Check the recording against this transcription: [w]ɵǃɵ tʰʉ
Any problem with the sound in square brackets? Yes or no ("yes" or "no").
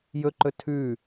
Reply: yes